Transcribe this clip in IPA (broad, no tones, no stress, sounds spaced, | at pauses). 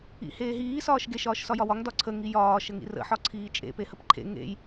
ḭ h eː ɦ iː s ɒː ʃ ɡ e ʃ ɒː ʃ s ɒ j ɒ w ɒ ŋ d ɒ ǀʰ ə ŋ i j ɒː ʃ ə ŋ ḭ r ə̰ ħ ɒ ǀʰ iː t͡ʃʼ ḛ p e h ə p ǃʰ ḛ ŋ ḛ j